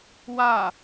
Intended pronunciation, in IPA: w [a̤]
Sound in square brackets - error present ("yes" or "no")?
yes